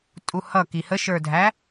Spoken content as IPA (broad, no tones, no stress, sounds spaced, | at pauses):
tʼ u h ʌ k i h ə ʃ ə˞ dʱ æ